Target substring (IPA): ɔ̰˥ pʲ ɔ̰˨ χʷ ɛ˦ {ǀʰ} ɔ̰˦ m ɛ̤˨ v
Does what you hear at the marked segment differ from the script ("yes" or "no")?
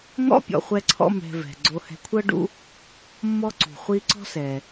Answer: no